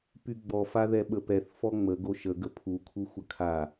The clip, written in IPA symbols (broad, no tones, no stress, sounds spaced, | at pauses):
p y ɡ͡b ɔ f a ð ɛ ɓ ə p ɛ θ f ɔ ŋ͡m ə ɡ o ʃ ə ɡ ə pʰ u kʰ u xʷ ə kʰ a